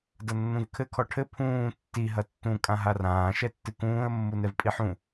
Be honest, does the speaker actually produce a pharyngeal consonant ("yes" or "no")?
yes